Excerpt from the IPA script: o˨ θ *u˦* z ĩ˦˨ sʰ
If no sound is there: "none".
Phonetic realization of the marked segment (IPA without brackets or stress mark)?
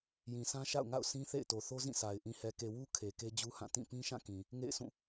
o˦